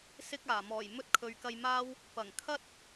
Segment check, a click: absent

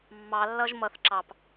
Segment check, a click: present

